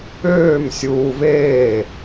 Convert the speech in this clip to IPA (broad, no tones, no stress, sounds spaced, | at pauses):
øː m sʲ uː v eː